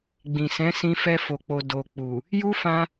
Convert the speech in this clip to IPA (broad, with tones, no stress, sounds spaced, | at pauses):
ɡ͡b ĩ˨ s ɛ̃˨˦ s ĩ˧ f ɛ˧ f o˨ k͡p o˨ d o˨ k͡p u˨ | j u˦ f ã˧